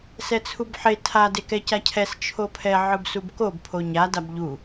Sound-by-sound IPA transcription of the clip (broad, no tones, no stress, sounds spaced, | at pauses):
s ɛ t͡sʰ u b ħ e tʰ a d e k ɛ c a cʰ ɛ s t͡ʃʰ o pʰ ɛ ʕ ɯ b s u b k o b pʰ o ɲ a d a b ʎ u